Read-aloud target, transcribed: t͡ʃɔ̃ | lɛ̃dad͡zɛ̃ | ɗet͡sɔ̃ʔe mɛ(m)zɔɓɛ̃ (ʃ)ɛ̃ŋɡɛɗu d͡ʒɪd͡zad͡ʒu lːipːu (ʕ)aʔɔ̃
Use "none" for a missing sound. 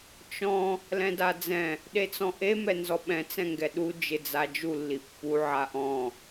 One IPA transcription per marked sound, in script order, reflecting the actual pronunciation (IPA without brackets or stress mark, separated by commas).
n, t͡s, ʕ